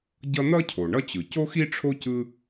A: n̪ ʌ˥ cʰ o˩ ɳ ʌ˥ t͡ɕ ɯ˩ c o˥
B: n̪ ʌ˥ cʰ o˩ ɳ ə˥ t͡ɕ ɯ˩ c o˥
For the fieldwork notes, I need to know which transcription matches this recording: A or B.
A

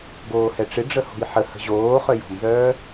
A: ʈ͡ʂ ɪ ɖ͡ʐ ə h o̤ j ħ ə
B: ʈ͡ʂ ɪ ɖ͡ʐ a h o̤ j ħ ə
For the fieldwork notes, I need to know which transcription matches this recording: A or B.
A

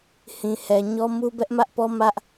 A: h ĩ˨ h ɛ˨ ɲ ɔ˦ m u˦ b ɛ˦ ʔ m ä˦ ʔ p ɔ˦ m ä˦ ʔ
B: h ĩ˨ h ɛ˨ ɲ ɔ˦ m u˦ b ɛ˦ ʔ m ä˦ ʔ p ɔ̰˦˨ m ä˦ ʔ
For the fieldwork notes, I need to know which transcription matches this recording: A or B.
A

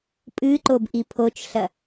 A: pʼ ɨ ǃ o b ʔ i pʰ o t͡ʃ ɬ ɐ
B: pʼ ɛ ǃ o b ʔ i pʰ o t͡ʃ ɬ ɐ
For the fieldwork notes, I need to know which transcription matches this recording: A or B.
A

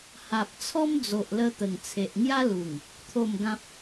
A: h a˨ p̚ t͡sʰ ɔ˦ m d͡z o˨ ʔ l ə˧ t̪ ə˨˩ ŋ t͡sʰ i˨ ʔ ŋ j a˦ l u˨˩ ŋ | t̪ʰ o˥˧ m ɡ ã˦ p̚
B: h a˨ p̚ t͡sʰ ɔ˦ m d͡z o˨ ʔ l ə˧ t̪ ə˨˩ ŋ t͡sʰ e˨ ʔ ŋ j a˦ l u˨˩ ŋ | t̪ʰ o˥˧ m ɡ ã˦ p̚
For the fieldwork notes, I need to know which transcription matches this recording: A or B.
B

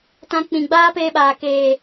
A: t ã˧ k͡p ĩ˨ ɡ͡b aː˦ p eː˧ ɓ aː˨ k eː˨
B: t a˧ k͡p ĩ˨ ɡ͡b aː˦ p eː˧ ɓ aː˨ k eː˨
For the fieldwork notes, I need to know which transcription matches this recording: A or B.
A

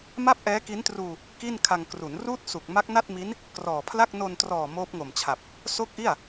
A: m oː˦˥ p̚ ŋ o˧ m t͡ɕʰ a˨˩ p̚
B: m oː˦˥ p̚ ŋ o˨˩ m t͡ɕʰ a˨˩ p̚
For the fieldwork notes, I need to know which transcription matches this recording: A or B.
B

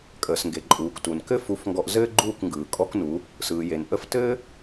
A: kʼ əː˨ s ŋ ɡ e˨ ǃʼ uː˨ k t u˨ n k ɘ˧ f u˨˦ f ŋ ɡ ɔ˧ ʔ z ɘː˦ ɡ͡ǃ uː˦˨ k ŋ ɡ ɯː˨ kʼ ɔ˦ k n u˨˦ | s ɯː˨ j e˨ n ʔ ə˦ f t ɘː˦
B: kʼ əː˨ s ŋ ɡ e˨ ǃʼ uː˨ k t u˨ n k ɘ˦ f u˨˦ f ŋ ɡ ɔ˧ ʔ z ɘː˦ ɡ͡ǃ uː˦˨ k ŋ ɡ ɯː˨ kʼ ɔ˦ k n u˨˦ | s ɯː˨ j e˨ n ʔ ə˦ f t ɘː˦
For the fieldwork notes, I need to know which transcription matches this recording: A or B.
B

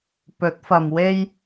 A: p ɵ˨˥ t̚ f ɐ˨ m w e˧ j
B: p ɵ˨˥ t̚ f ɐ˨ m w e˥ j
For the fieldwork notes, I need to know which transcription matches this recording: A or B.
B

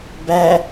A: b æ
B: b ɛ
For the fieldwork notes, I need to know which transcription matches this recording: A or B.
A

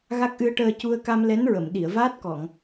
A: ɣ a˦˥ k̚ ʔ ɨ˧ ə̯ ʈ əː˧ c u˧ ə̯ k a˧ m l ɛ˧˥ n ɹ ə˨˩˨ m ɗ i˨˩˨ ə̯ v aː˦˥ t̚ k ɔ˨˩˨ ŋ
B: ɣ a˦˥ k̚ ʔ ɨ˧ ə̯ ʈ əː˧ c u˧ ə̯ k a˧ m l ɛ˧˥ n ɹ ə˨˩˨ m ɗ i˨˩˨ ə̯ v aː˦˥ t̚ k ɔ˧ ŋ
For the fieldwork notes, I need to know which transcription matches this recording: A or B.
A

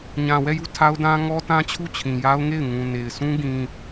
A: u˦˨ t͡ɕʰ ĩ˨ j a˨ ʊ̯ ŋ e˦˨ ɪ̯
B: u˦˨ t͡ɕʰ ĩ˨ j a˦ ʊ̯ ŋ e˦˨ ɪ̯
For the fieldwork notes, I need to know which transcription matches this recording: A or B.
B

